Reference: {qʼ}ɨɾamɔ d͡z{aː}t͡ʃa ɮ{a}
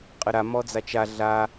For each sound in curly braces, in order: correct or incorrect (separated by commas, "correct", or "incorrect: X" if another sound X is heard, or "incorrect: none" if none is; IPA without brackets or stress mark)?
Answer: correct, incorrect: a, correct